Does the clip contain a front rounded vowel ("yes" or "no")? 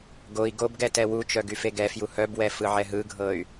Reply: yes